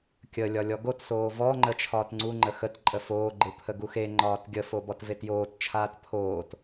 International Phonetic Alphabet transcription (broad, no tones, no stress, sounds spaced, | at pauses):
kʲ ə lʲ ɒ lʲ ɔ ɡ o t s oː v ɔ ŋ͡ǃ ə t͡ʃʰ ɒː t ŋ͡ǀ u ŋ͡ǃ ə x ə t ǃʼ ə f oː ɡ͡ǃ ɯ pʰ ə ɡ u x e ŋ͡ǃ ɒː t ɡʲ ə f o b ɔ t v e t j oː t t͡ʃʰ aː t pʰ oː t